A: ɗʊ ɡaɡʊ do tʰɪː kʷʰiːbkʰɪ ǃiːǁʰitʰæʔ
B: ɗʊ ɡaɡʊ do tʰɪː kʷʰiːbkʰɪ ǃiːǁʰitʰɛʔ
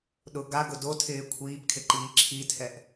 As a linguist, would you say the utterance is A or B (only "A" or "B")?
B